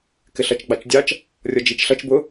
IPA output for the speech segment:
k ɪ ɬ ʌ t͡ʃ ɡ͡b ɑ t͡ʃ dʲ ɑ t͡ʃ | rʲ ɔ d͡ʒ i t͡ʃ ɬ ʌ t͡ʃ b ʊ

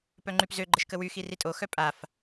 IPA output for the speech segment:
p œ ŋ͡ǃ y p z ø ɡ͡ǃ ə ʃ k ə w y x i r i tʼ o x œ pʼ a f

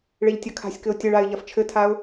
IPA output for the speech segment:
ɭ e ʎ tʲ ɐ kʰ a̤ sʲ k ɘ ʊ̯ tʲ ɘ ɭ a ɪ̯ ʎ ɐ f t͡ʃʰ ɘ tʰ a ʊ̯

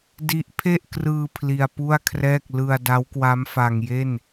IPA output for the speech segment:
d i˦˥ ʔ pʰ e˥˩ ʔ k r ɯː˧ pʰ l i˧ a̯ p u˥˩ a̯ kʰ r ɛː˥˩ k̚ l ɯ˧ a̯ d a˦˥ w k w a˦˥ m f a˧ ŋ j e˥˩ n

